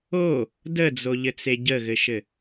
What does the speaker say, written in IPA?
o | d ə d͡z o ʎ ɘ t͡s e ɟ ə ɣ ɘ ʃ ɘ

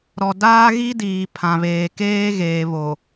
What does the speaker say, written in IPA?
ɾ ɔ˨ d aː˦ ɣ i˦ d iː˨ pʰ ã˨ β eː˨ k eː˦ ɣ eː˨ β o˨

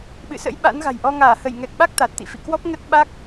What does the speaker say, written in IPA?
ɓ ɨ̰˧˨ s ə̰˧˥ j ɓ a̰˧˥ n ɣ a̤˨˩ j ʔ ɔ˧ ŋ aː˧˩ h ə˧˩ j ŋ ɛ˨˩ k̚ ɓ a˦˥ k̚ t̪ a˨˩ t̚ t̪ ḭ˧˨ f ḭ˧˨ k w ɔ˦˥ p̚ ŋ ə˦˥ t̚ ɓ a˦˥ k̚

